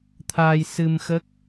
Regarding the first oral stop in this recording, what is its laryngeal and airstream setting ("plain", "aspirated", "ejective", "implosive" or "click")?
aspirated